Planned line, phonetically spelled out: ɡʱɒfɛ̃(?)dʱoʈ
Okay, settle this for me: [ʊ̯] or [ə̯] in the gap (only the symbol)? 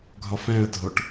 ə̯